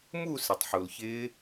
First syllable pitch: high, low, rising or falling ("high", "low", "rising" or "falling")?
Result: falling